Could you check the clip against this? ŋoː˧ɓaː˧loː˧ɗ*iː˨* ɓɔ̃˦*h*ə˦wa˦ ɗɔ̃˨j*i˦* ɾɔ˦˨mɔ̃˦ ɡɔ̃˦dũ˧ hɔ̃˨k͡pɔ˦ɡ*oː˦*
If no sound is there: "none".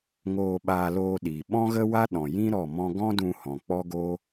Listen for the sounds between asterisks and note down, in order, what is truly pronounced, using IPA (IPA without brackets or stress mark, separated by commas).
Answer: iː˨, ɣ, ĩ˦, oː˦